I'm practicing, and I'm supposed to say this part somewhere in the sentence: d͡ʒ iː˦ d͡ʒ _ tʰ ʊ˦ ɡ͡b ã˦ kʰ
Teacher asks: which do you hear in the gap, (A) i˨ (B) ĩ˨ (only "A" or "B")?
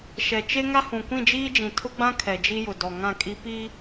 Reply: B